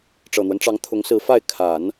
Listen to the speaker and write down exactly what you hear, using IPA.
ʈ͡ʂ ɤ˨˩ n̪ w ə˦ n ʈ͡ʂ ɑ˧˥ ŋ t̪ʰ ʊ˧˥ ŋ s ɹ̩˧˥ f a˥˩ ɪ̯ kʰ a˨˩˦ n

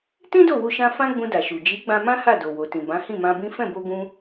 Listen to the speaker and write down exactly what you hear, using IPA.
t ĩ˦ d o˦˨ w u˧ ʃ ã˧ f ã˦ ɡ͡b ũ˧ d a˨ ʃ u˨ d͡ʒ i˨˦ ɡ͡b ã˧ m ã˦ h a˦˨ d o˨ w o˨ t ĩ˨ b ã˨˦ h ĩ˦˨ m ã˧ b ĩ˦ f ɛ̃˦˨ b o˧ ɡ ũ˧

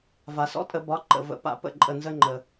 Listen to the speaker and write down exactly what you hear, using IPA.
v a˩ s ɔ̰˦ tʼ ə˨˩˦ b ɒ˩˥ ǃ ə̰˩ v ə̰˨˩˦ p a̰˨˩˦ p ə̰˧˩ ǃʼ ə˧˩ n z ə˦ ŋ͡ǃ ə˩

